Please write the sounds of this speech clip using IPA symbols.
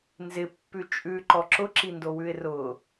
nzɪpːʉ t͡ʃʼʉǃɔ ǁʊǁindowʉɪ̯ rʊ

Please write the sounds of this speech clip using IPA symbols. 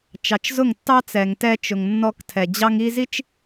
t͡ʃɑ˨t͡ʃzʊ˦˨ŋtːɑ˦ t͡sɛ˨ŋ tɛ˦t͡ʃʊ˨ŋ nːɔ˦ktʰɛ˨ d͡ʑɑ˦ŋi˦zi˦t͡ʃ

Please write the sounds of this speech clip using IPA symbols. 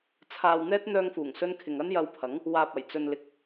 t͡sʰaː˧wn̪ɛː˥t̚ n̪œː˧ŋfuː˨˩ŋsɵ˧nkʰɪ˨ŋ ɐ˥njɐ˧wpʰɐ˨˥ŋ | waː˨p̚ɐ˨˩j t͡sɵ˧nlɪ˧k̚

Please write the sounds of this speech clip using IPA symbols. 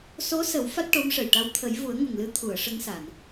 so˧˥sə˨˩˦w fa˦˥t̚ʈo˧˥mʂə˨˩jʈa˧˥w t̪ʰə˨˩˦jvu˨˩˦ə̯ŋə˨˩ŋ lɨ˧˥t̪ʰu˨˩˨ə̯ ʂə˧˥ŋsa˨˩˨n

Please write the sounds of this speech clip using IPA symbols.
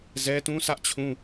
zɛ˦tũ˦ sä˦ʔt͡ɕʰũ˦

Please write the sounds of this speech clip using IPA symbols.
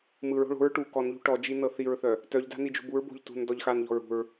mɯɹo̤ ɭo̤ɹ ʈu kɔnʎṳ ʈɔd͡ʒi nɤθiɹθœ | tœʎda̤ nid͡ʒṳbuɹbo̤ʎ tṳn dɔʎxanʎɔ̤ɹ ṳɹ

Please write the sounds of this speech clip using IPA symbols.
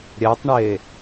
ɾʲɛtˤɳe

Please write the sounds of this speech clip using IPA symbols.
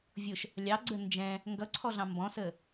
vʲʊʃ | lʲɑɡ͡ǀə nd͡ʒɛ̃ | ŋɡʌǀʰɔɮɑ̃ mbɔ̃sə

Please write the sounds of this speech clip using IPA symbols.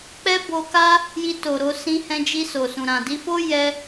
k͡pɛ˦bo˧ka˦ | ji˧to˨ɾo˧sĩ˧ hɛ̃˧d͡ʒi˧so˨sũ˨ ɾã˨di˧fo˦ jɛ˧

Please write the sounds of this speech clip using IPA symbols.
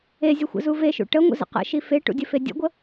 ezʲəxʷə̰zu veʃṵ ʈəŋʷə̰zə̰ qə̰ʃi feʈṵdʲəfe dʲə̰ɡʷə

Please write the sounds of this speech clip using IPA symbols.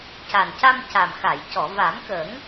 ca˨˩nca˧mca˨˩mxa˨˩˨j cɔ˨˩˨va˨˩˦mkə˨˩˦ŋ

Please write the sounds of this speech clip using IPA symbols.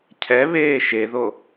cʰɛβeː ʃeðo

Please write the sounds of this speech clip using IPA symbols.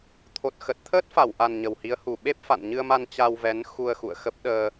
t̪ʰo˨˩t̚xə˨˩t̚t̪ʰəː˦˥t̚ fa˧˩wʔa˨˩n ɲə˨˩whi˨˦ə̯hu˨˩ ɓe˦˥p̚fa̰˧˨nɲɨ˧ə̯ma˧n t͡ɕa˧wvɛ˨˦n xu˧ə̯ xṵ˧˨ə̯xə˦˥p̚ ɗəː˧

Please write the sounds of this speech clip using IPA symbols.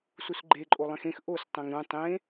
susɡ͡ǃe ǃʼolˠẽxẽx ʔos tˤæ̃ŋɾũ tˤẽ

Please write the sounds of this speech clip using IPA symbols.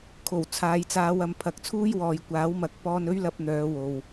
kʰo˨˩w t͡sʰaː˨jt͡saː˨˧w ɐ˨mpʰɐ˨˥k̚t͡sʰuː˥jwɔː˨j kʷaː˨˥wmɐ˨˥k̚ pɔː˧nɵ˥ɥlɐ˧p̚ n̪œː˨˧wo˨w

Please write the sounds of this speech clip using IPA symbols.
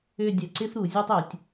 ʏ˥˧dʲœ˧ ǀɪ˥fɾu˩˧zʲø˥tˤø˩˧tʲ

